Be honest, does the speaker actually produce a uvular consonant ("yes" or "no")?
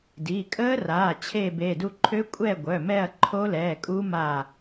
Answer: no